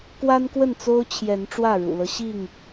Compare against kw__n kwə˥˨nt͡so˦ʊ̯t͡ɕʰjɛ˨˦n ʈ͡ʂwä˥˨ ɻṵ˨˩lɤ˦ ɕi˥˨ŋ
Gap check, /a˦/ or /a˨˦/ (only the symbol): a˦